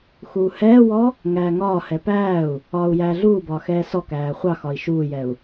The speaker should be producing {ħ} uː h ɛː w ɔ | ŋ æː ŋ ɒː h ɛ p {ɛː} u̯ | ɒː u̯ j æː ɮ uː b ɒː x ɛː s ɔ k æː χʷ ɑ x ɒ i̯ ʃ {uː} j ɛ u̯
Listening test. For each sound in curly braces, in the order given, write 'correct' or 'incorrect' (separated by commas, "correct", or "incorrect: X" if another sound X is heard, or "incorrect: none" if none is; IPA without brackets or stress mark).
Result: incorrect: x, incorrect: æː, correct